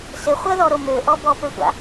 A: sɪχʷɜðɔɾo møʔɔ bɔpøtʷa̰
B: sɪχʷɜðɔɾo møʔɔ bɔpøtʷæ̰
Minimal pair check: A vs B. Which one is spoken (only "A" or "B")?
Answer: A